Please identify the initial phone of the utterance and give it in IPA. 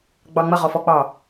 ɡ͡b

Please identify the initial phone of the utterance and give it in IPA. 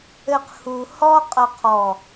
ɘ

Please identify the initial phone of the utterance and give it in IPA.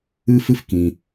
ɨ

